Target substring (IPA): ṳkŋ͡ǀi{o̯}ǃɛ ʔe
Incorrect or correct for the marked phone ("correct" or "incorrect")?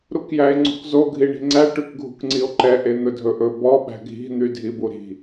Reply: correct